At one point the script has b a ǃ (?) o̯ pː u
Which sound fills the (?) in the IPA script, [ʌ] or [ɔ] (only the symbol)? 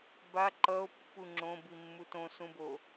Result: ʌ